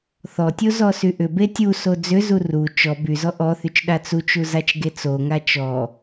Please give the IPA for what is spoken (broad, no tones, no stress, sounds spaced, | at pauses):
θ ɔ tʲ o z ɔ s y ʔ ʏ b e tʲ u s o d͡z ʏ z u r u t͡ʃ ɔ b y z ɔ ʔ ɔ θ y t͡ʃ ɗ a t͡s u t͡ʃ u z a t͡ʃ ɡ e t͡s o ŋ a t͡ʃ ɔ